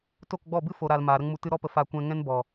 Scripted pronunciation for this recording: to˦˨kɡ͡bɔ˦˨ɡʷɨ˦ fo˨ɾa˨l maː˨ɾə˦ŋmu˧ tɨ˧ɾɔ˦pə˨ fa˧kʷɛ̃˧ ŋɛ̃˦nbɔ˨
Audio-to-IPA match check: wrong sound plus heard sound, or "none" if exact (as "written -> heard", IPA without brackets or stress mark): ɡʷ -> b